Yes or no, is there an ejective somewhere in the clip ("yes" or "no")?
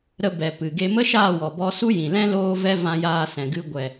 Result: no